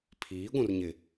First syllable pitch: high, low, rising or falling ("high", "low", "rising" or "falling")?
rising